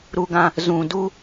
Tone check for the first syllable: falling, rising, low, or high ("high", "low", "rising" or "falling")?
high